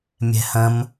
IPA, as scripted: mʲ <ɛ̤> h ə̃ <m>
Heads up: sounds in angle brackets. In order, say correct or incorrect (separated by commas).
correct, correct